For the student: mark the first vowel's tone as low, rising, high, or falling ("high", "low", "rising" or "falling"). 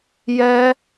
high